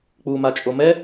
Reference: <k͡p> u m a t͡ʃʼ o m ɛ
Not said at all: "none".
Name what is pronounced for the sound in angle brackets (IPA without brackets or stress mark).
k͡p